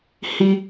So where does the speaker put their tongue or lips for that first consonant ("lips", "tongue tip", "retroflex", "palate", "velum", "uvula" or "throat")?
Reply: throat